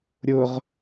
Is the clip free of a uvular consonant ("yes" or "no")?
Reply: no